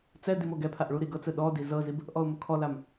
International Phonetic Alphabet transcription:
t͡s ɛ d i m o ɡ ɛ pʰ a ʔ ɭ u ɾ i ɡ ɤ t͡s ɯ ɗ ɔ d i z ɤ z i b | ʔ ɔ ʊ̯ m u kʰ ɔ l a m

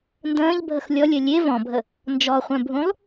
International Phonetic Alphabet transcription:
n d ə̃ː ʎ bʱ ə x lʲ ɔ lʲ œ lʲ e v ɔ̃ bʱ ə | n d͡ʒ ɔ χʷ œ̃ bʱ ũ lˠ

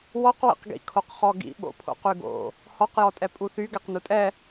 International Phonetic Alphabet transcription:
w ɔ q w ḭ q ɡ ḭ kʰ o q χ ɔ ɡ ḭ ɓ o̰ pʰ o̰ q y ɡ o̰ | h ɔ q j ɔ tʼ ɛ pʼ u θ y ɡ ɛ q n u tʼ ɛ

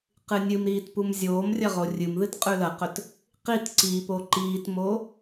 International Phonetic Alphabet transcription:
q ɨ nʲ ɨ m ɾ iː t p u m zʲ oː m rʲ ɐ ʁ o rʲ ɨ m ð ɨ t qʼ ʉ l ɐ q ɵ t | q i t ǀ i p o ǃ iː t m o

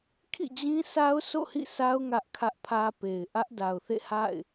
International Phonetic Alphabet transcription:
kʰ ḭ˦˨ d͡ʑ ĩ˦ s a˦ ʊ̯ s o̰˦˨ h ḭ˦˨ s a˦ ʊ̯ ŋ ä˦ ʔ kʰ ä˦ ʔ pʰ ä˦ p e˨ ɪ̯ ʔ ä˦ ʔ d a˨ ʊ̯ θ ḛ˦˨ h a̰˦˨ ɪ̯

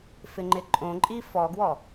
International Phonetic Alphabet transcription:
f ɪ ŋ͡ǃ ɪ ǃʼ õ ǃʼ i f ɔ ɡ w ɔ

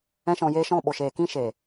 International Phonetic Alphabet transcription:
ɛ̃˦ ʃ ɔ̃˧ j eː˦ ʃ ɔ̃˦˨ ɓ o˨ ʃ eː˨ k ĩ˦ ʃ eː˨

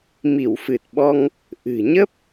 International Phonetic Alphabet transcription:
m i˧˩ w f ɨ˨˩ t̚ ɓ ɔ˧ ŋ | ʔ ɨ̤˨˩ ɲ ə˦˥ p̚

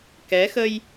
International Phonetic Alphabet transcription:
k ɛ˨˦ x ə˧ j

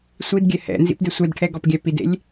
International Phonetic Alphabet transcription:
sʷ i d ɡʲ ɛ h ɛ̰ n z ḭ p d e sʷ ɛ d ʈʰ ɛ ɡ ɔ p ɡʲ æ p i d ḛ lʲ

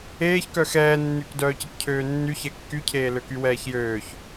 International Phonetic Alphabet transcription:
eː ç k œ x ɛː nː y k d œː c ə k cʰ øː nː y ç ɛ kː y cʰ eː l ø k y w ɛː ç j øː ç

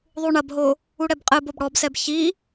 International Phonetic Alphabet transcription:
ðˤ u ɳ ɐ b ɦ o | u ɽ ɛ b qʼ ɘ b o b ɽ ɔ b s ɛ b ç i

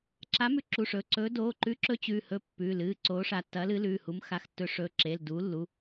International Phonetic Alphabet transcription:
ǁ a˨˥ m ʉ˨˥ ǁ u˩˧˩ ʂ ɵ˩˧˩ ǀ ɵː˨˥ d oː˩˧˩ ǃ ʉ˨˥ ǁ ɵ˨˥ t͡ɕ ʉː˩˧˩ h ɵ˨˥ pː ʉ˩˧˩ l ɨ˩˧˩ ǀ oː˨˥ ʂ a˩˧˩ tː ɐ˨˥ l ɨ˨˥ l ʉː˩˧˩ h u˨˥ m x a˩˧˩ x tː ɵ˨˥ ʂ ɵː˩˧˩ ǁ eː˩˧˩ l d uː˨˥ lː u˩˧˩

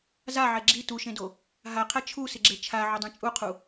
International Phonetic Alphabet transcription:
z a ʕ ɛ ɡ͡ǁ i t u ʃ ẽ d o | ɦ a qʰ ɛ t͡ʃʰ u s ɪ ɡ͡ǁ e t͡ʃʰ a ʕ ʊ dˤ ĩ t͡ʃʼ u qʰ u

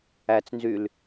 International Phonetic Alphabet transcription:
æ t͡s n z y l

